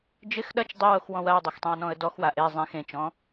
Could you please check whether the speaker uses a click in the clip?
no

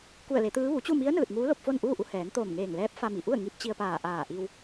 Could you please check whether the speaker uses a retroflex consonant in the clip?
no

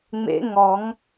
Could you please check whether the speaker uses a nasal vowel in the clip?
no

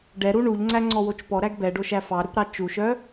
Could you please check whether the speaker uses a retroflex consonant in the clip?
yes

